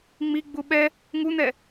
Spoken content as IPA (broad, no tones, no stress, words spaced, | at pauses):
ŋ͡miɡ͡bu ɓɛ | ŋun̪ɛ